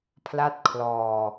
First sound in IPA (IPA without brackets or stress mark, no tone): pʰ